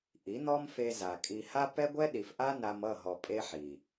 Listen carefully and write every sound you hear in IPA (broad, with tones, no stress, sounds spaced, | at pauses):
ʔ i˨˦ n̪ ɔ˦ m f e˧ z a˨ kʼ i˧ h a˦ p ɛ˦ ɡʷ ɛ˦ ɗ i˨ f ʔ a˦ n a˧ m ʌ˦˨ ɦ ɔ˨ pʼ e˦ ħ i˨